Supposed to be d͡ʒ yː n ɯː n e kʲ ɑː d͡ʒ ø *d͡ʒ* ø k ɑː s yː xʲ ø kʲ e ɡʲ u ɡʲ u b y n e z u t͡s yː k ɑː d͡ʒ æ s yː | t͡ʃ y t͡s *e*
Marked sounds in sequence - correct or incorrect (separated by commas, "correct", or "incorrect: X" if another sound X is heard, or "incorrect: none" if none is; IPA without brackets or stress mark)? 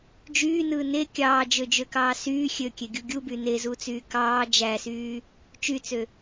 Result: correct, incorrect: ø